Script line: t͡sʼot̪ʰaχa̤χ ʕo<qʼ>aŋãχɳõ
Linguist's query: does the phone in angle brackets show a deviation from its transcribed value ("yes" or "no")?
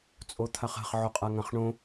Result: no